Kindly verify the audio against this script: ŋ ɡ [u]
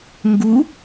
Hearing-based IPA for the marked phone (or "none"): u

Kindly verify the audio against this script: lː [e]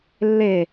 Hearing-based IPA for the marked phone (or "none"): e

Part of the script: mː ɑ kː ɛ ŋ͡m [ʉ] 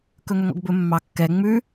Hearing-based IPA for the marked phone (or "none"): ʉ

